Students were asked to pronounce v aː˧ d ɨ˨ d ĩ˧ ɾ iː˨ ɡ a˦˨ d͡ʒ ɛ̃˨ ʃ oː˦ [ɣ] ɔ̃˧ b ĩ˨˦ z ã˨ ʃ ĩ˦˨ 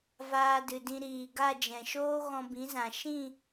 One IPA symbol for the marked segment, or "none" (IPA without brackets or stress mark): ɣ